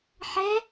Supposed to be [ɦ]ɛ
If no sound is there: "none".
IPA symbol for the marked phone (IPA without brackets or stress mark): ħ